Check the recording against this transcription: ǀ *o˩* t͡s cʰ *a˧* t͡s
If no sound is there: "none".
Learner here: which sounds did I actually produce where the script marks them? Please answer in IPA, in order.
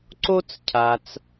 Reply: o˥, a˧

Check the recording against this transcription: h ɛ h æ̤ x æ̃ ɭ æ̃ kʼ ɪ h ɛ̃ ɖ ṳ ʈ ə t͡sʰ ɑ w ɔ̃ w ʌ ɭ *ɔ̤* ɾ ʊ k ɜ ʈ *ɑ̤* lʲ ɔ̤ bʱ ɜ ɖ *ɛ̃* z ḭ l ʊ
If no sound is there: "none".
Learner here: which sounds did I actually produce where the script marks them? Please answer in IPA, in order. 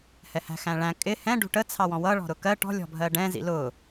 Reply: ɔ̤, ɔ̤, ɛ̃

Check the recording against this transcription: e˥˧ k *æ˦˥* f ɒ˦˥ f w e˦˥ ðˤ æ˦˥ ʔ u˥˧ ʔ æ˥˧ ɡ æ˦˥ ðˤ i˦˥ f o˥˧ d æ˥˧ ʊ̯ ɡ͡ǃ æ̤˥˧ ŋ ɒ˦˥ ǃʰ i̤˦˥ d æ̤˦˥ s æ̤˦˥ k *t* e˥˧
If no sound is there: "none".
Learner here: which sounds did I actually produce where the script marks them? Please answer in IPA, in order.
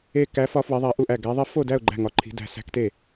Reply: æ˦˥, t

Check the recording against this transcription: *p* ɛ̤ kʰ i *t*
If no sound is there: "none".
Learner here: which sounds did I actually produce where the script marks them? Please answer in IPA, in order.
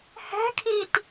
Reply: h, t

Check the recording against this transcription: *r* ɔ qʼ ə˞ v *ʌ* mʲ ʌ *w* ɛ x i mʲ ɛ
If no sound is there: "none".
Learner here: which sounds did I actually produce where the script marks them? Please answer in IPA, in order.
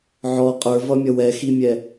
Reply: ʕ, ʌ, w

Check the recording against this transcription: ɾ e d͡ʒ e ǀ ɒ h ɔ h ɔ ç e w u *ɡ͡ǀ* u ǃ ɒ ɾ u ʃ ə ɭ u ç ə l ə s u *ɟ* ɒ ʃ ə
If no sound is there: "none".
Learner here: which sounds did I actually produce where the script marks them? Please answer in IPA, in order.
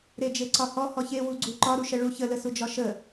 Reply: ɡ͡ǀ, d͡ʒ

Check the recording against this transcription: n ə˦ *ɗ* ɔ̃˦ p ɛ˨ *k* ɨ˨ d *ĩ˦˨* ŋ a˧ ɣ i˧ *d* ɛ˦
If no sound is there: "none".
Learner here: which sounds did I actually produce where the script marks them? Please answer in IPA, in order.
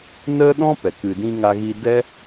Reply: ɗ, k, ĩ˧, d

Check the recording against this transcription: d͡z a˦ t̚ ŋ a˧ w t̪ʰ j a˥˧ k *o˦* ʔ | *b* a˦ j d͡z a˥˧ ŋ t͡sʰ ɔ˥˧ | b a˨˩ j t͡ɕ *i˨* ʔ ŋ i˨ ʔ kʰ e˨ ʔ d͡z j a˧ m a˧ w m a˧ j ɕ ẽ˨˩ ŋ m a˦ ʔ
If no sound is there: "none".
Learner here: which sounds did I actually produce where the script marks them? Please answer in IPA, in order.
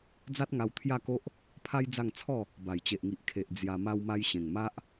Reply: o˦, pʰ, e˨

